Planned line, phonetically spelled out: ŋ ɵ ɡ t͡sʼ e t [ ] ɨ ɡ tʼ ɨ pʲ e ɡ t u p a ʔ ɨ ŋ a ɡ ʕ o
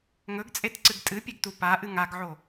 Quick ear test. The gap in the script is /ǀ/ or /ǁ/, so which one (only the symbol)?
ǀ